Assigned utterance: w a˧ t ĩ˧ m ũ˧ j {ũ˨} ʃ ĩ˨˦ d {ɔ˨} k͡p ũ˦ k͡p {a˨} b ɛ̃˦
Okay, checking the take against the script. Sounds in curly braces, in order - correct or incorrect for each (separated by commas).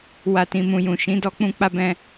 correct, incorrect, incorrect